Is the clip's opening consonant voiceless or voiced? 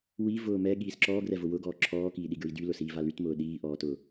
voiced